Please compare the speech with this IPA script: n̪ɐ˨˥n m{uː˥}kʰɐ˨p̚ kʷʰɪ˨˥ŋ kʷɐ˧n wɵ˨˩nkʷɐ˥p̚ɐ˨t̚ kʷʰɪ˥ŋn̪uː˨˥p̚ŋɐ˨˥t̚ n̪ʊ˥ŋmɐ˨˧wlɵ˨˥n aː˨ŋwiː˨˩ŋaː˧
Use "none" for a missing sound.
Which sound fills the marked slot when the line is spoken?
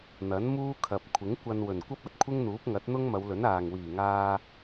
uː˥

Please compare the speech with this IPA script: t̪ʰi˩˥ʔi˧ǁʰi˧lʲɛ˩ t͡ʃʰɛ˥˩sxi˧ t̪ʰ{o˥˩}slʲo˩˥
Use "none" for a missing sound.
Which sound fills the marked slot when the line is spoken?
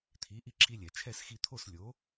o˥˩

